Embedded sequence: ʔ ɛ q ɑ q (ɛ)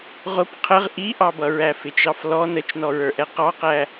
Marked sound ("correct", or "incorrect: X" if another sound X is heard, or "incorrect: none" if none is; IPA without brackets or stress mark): incorrect: æ